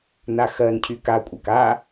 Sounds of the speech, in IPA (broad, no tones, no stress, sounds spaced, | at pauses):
n a x ɜ n cʰ y k a kʷʼ a k a